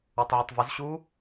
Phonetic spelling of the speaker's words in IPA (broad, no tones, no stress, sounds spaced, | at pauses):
o tˤ ʕ ʊ tˤ v ʊ z ɕ u